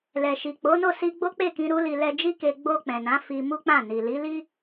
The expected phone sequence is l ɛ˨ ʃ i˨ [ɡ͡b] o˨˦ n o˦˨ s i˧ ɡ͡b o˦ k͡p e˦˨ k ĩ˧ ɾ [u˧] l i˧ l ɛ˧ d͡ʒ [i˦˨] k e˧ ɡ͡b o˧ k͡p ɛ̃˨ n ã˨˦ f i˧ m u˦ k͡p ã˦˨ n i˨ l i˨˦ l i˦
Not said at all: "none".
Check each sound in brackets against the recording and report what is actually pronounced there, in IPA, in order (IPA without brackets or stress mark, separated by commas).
k͡p, u˦, i˦